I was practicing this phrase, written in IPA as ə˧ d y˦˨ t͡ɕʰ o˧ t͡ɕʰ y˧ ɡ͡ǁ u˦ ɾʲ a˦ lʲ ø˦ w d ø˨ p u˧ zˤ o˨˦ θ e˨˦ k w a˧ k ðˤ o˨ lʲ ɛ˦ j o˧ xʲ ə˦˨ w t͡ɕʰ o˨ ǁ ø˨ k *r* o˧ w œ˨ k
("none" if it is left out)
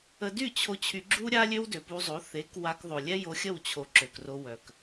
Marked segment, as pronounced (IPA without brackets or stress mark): r